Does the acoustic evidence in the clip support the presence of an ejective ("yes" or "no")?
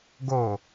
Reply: no